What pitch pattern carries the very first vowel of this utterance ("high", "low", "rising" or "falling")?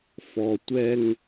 low